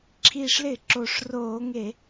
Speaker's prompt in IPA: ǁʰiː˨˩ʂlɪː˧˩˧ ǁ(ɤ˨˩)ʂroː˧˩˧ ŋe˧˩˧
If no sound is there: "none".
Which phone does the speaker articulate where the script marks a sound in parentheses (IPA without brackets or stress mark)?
o˨˩